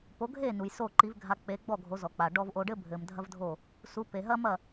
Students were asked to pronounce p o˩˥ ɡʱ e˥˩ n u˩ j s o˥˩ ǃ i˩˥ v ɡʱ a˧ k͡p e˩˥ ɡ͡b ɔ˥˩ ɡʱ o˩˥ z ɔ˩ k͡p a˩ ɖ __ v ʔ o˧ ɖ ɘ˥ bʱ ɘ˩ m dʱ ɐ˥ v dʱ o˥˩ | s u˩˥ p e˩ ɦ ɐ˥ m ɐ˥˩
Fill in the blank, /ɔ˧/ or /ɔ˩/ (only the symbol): ɔ˧